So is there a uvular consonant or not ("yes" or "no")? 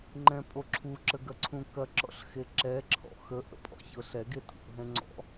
no